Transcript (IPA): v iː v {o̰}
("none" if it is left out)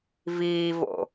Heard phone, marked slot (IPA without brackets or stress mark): o̰